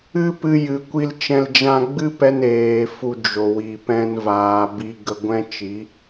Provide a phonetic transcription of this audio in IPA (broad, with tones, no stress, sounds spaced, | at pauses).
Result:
ɨ˦ p ɨ˧ j ɨ˨ kʷ i˧ l t͡ʃ ɛ̃˧ l d͡ʒ ã˧ ɡ͡b ɨ˦ p ɛ˧ n eː˨ f u˧ d͡ʒ o˨ w i˨ p ɛ̃˧ n v aː˨ b i˧ ɡ ə˧ ɡʷ ɛ̃˦ t͡ʃ i˨˦